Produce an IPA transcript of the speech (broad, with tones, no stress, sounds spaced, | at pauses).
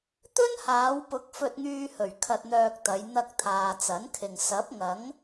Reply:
t̪ ɵ˥ n h aː˨˧ w p ʊ˨˥ k̚ f ɵ˧ t̚ ŋ yː˧ h ɵ˨˩ ɥ kʰ ɐ˧ t̚ n̪ œː˧ k̚ t̪ ɐ˨˧ j n̪ ɐ˧ k̚ t̪ʰ aː˨ t͡s ɐ˨˥ n kʰ ɪ˨ ŋ s ɐ˨˥ p̚ ŋ ɐ˨˥ ŋ